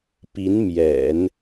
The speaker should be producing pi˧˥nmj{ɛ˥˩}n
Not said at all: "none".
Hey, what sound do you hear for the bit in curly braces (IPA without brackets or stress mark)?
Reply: ɛ̰˨˩˦